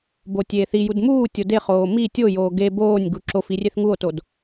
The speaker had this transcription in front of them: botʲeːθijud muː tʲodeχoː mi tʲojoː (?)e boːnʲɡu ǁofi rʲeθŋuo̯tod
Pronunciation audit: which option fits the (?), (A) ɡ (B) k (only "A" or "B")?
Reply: A